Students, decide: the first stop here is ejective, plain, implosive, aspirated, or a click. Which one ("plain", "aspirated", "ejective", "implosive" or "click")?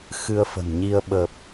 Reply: implosive